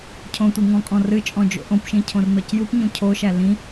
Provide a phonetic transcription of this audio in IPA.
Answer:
cʰ õ tʷ i ŋ ɔ̃ kʼ ɔ̃ r ɨ t͡ʃʼ ɔ̃ d͡ʒ o̰ ʔ õ p ʃ ĩ cʰ õ r n ɔ c j u p ɲ ũ cʰ o ʃ æ l ĩ

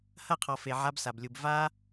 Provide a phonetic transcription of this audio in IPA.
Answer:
h ɐ˦˨ qʰ ɔ˨ f e˨ ʕ a˧ b s a˨ b lʲ u˨ b v a˧

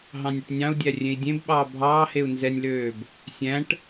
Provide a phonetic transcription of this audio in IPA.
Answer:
ɦ ɑ̃ nʲ ɵ ʈ nʲ ɑ̃ u̯ dʲ æ rʲ ẽ i̯ dʲ ẽ b ɓ ɑː bʱ ɑː h e u̯ n z ɛ nʲ l øː b | sʲ æ̃ ʈ

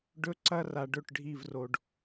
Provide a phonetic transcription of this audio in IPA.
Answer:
ɖ ɵ˧ ǀ ɐ˧ r a˨ ɖ ɵ˦˨ ʈ ɖʱ i˦˨ v r o˧ ɖ

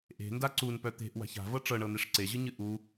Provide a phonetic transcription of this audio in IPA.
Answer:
ʔ e̤ n d a ǀ u n p œ t̪ e̤ ʔ w a̤ ç a̤ v ɤ ʈ͡ʂ ɤ ɳ ɤ n̪ e ʂ ǀ e ʑ ɨ ɲ ɨ ʔ u

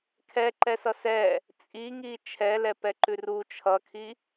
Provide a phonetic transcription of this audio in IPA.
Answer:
kʰ ɛ ǃ ɛ s ʌ s ɛ | t͡sʼ i ŋ i t͡ʃʰ ɛ l ɛ p ɛ ǃ ʉ r u t͡ʃʰ ʌ kʰ i

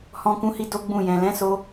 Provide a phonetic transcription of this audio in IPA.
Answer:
h ɔ̃˧ k ũ˧ h i˧ d o˦ ɡ͡b ũ˦˨ j ɛ̃˨ l ɛ̃˨˦ s o˧

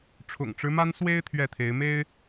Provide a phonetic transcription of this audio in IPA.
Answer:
ʈ͡ʂʰ ʊ̰˨˩ ŋ ʈ͡ʂ ɻ̩˦ m a˦ n s w e˦ ɪ̯ t̪ʰ ɥ ɛ˥˨ t̪ʰ e˨˦ ɪ̯ m e˦ ɪ̯

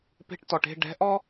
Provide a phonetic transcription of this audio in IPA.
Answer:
p e̤˧ ʈ t ɔ˨ ʈ e̤˦˨ ɖ ɛ̤˨˦ ʔ ɔ˦

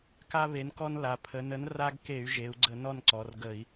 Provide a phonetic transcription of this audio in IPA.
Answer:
k a˦ β e˨˥ n k ɔ˦ n l a˩˧ pʰ ə˩˧ n ə˨˥ n r a˦ ɡ k e˧˩˧ y̯ ʒ e˩˧ u̯ ɡ͡ǀ ə˧˩˧ n ɔ˥˨ n ǀ ɔ˩˧ r ɡ ə˧˩˧ i̯

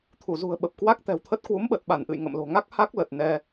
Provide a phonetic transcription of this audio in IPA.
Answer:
t̪ʰ u˧˩ z ṳ˨˩ ə̯ ɓ ə˨˩ p̚ k w a˦˥ k̚ t̪ ɛ̤˨˩ w t̪ʰ ə˦˥ t̚ k w u˨˦ m ɓ ə˨˩ t̚ ɓ a˧˩ n ʔ ɨ̰˧˨ j ŋ ə̰˧˨ m l o̤˨˩ ŋ a˦˥ k̚ h a˦˥ k̚ l ə˨˩ t̚ n ɛ˧

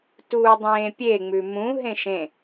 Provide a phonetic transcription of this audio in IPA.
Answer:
t uː dˤ ẽː pʲ e ŋ͡m ʉ m ũ ɦ ẽ ʃ ẽ

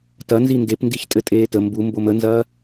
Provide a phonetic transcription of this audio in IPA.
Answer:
t ɐ n z i n d e p n d i ç tʼ ɘ tʼ eː t ə m b u m b o m ə n z ɐː

